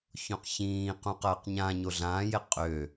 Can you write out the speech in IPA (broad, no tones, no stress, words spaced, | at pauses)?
çõqçĩːqũ qɐːqɲãɲo ɮãːje qʼø